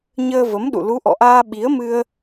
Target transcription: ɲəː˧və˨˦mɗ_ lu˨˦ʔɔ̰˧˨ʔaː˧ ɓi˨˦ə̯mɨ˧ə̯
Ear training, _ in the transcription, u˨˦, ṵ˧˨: ṵ˧˨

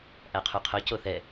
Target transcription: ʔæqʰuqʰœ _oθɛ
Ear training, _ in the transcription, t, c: c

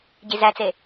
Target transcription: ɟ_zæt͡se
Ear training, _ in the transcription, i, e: i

